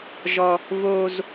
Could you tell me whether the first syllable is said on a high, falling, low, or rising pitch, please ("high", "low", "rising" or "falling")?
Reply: high